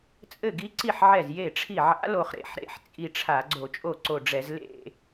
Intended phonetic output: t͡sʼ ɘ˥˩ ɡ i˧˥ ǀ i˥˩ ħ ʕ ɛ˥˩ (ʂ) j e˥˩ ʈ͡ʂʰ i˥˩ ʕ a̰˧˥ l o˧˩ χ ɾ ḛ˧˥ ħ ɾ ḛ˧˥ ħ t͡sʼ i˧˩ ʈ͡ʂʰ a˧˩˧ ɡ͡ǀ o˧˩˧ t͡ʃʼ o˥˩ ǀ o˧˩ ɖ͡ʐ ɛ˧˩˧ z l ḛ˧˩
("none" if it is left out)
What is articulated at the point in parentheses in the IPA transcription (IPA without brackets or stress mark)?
z